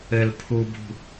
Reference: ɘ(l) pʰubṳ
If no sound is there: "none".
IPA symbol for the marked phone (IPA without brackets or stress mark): l